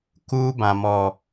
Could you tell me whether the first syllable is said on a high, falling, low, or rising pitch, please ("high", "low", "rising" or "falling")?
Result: high